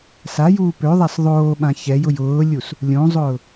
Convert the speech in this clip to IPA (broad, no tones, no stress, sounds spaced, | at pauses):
s a j uː p ø ðˤ a s ðˤ oː ɓ ã ç ɛ j ʊ j ʊː lʲ u s | lʲ õ zˤ ʊː